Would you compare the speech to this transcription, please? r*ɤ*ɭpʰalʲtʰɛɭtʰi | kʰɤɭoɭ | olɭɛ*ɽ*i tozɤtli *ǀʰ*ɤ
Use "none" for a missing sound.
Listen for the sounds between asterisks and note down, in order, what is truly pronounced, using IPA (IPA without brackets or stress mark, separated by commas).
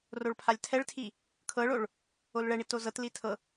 o, ɳ, tʰ